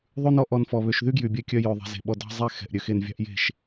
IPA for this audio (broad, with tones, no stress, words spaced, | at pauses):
ðˤʉ˦nɔ˦ ʔɔ˧nfɔ˨βø˧ʃ ðy˦ɡjy˨bʲɛ˧kʲœ˧ jø˨ ðˤe̤˧ze̤˨ɓɔ˧ dɑ̤˦ zˤɛ˦xɛ̤˨ʔ ɾʲø˧xe˧nvʲɑ̤˦ʔje̤˦˨ʃ